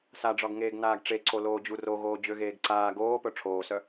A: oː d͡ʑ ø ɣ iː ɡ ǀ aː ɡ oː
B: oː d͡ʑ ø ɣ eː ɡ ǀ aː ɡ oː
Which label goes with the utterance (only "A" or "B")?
B